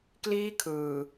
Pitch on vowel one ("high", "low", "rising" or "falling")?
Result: high